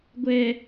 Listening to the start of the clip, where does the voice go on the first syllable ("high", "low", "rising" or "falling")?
low